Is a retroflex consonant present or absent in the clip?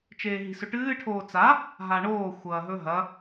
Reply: present